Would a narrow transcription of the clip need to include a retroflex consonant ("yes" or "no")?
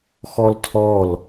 no